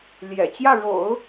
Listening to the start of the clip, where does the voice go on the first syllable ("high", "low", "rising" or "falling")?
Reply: low